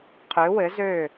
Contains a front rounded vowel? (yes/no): yes